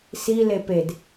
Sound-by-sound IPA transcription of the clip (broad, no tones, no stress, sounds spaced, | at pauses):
s i l e p e d